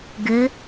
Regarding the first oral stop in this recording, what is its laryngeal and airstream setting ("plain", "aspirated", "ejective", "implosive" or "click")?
plain